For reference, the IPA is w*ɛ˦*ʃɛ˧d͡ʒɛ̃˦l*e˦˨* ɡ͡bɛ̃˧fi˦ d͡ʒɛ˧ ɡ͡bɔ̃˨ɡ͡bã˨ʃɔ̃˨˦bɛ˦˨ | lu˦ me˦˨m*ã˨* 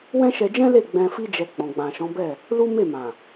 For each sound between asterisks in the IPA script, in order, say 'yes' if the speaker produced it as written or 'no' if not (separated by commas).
no, yes, yes